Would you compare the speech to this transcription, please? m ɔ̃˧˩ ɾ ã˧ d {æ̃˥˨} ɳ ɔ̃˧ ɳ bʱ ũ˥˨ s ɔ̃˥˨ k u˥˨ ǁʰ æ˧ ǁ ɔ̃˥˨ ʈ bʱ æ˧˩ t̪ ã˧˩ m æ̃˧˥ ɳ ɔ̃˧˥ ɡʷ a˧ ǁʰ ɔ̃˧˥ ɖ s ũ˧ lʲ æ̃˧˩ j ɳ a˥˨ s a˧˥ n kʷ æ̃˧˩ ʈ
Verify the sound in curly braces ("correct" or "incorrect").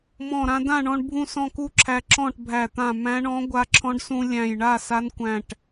incorrect